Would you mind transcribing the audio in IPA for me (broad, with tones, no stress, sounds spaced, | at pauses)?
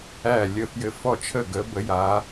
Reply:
æ˧˩ lʲ ə˧˩ f j ɘ˧˩ f ɔ˧˩ t͡ʃʰ ə˧˩ ɡ ə˨˦ b ə˨˦ j a˨˦